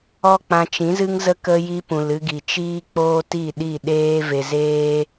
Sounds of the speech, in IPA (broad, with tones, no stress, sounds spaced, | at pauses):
ɔ˦ k͡p ã˧ t͡ʃ ĩ˨˦ z ɨ˦ ŋ z ə˦ k ə˧ j i˧ p ũ˨ l ɨ˧ ɡ i˨ t͡ʃ iː˦ k͡p oː˦ t i˦˨ ɗ i˦˨ ɗ eː˦ v e˧ z eː˦